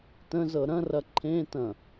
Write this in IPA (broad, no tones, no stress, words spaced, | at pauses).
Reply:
tə̃zɤ ɾɐ̃rɐ ǃʰẽ tɐ̃